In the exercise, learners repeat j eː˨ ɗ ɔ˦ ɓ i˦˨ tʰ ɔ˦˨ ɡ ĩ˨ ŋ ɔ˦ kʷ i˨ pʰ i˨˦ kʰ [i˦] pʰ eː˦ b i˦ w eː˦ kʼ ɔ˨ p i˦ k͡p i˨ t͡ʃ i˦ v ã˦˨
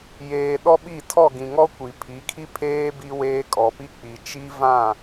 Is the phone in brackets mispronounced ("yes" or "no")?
no